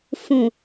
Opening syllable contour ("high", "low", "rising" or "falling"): low